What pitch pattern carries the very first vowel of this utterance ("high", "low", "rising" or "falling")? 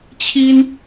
high